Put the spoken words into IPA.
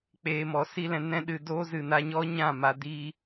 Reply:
k͡p eː˧ m ɔ˨ s i˦ l ɛ̃˧ n ɛ̃˦ ɗ ɨ˧ d oː˦ z ɨ˨ n a˧ ɲ ɔ˦ ɲ ã˦˨ m a˧ d iː˧

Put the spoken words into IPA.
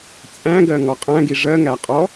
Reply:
t͡sʼ æ̃ ɡ ɜ ŋ ɔ qʼ æ̃ ɡ i ʐ ɜ ŋ æ qʼ ɔ

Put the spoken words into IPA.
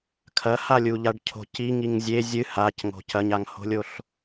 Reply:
kʰ ɐ h a lʲ u ʎ a ɖ cʰ o̤ c i ŋ i ŋ zʲ e zʲ ɨ h a c ŋ o̤ c ɐ ɲ a ŋ h o̤ lʲ o ɬ

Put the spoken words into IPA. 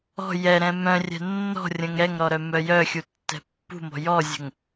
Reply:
ɔ̤ j ɛ ɾ ɛ̃ m œ̃ rʲ ɛ̤ nː ɔ̤ rʲ ə̃ ŋ ɾ ɛ ŋ ɾ ɔ ɾ œ m œ j œ xʲ u tː ɛ̤ pː ṳ m ɔ̤ j ɔ zʲ ə̤ ŋ

